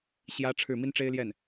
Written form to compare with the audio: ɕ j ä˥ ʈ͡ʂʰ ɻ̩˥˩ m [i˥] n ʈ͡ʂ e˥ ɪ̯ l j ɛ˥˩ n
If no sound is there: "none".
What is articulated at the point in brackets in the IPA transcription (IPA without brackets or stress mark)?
i˥